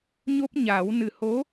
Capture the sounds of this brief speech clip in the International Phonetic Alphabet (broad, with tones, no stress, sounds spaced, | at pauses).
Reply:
ɲ o˦˥ p̚ ɲ aː˨˩˦ w n ɨ˨˩ h o˧˥